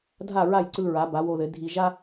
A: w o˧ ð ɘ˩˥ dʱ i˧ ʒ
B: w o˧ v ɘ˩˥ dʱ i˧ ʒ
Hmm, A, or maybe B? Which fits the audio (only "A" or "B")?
A